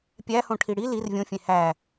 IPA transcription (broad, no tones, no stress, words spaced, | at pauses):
pʲæhõʈʰi ɽi lir vʲõfʲẽ hæ